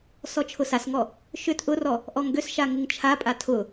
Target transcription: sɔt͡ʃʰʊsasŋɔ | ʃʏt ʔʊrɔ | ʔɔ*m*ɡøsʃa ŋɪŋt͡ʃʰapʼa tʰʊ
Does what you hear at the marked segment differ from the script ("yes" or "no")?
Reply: yes